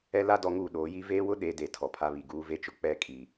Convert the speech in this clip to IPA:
ɛ˦ l a˦ d ɔ˨˦ ŋ uː˨ ɗ oː˨˦ j i˦ v eː˦ w ʊ˦ ɗ e˨˦ d e˨ tʰ ɔ˨ pʰ a˦ β i˨ ɡ uː˦ v e˦ t͡ʃ ʊ˨ k͡p ɛ˦˨ kʼ i˨

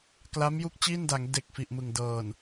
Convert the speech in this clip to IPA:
k l a˦˥ m j u˦˥ k̚ t͡ɕ iː˥˩ n d a˩˦ ŋ d e˨˩ k̚ f i˨˩ ʔ m ɯ˨˩ ŋ d ɤː˨˩ n

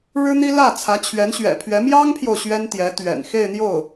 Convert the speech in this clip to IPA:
ɻ ɻ̩˥ n̪ i˥ l ä˥˩ t͡sʰ ä˧˥ t͡ɕʰ ɥ ɛ˧˥ n ɕ ɥ ɛ̰˨˩ pʰ ɥ ɛ˧˥ m j ɑ˥ ŋ pʰ j o˨ ʊ̯ ɕ ɥ ɛ˥ n t̪ j ɛ˧˥ t̪ ɥ ɛ̰˨˩ n x e˥˧ ɪ̯ n̪ j o˥˩ ʊ̯

